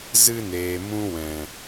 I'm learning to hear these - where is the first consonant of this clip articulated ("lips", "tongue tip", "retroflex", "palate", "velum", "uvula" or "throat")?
tongue tip